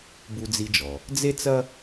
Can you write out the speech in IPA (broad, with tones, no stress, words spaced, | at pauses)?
bu˧d͡zi˧d͡ʒɔ˩ | d͡ze˥t͡sɐ˥